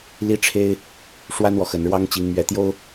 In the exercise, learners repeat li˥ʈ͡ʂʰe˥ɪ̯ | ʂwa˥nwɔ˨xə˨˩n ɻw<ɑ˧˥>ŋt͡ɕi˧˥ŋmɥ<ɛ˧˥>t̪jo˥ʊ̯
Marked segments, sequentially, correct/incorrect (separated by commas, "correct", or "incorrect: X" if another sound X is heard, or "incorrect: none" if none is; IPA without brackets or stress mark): incorrect: ɑ˥, correct